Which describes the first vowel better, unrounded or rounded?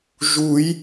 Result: rounded